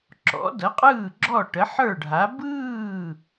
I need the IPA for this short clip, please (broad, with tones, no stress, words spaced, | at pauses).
ǁɔ̰˩˥dʌ˩˥qʼɯː˥˩ ɡ͡ǁɔ˥˩ʈə˩˥ħə˞˥˩ɖʱa˩˥ bɯː˥˩